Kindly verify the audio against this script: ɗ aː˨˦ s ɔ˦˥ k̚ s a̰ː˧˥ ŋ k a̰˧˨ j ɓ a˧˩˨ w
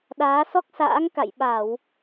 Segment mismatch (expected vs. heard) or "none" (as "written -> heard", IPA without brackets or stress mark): none